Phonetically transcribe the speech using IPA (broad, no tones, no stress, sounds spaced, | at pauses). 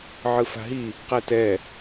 ʕ ɯ f a̤ ɦ i | q ɛ t ɛ